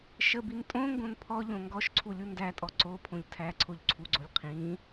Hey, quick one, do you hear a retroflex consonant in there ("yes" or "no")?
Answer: no